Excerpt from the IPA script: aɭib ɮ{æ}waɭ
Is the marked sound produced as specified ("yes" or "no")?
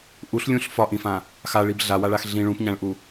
no